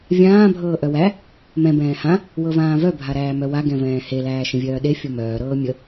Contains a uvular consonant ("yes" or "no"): no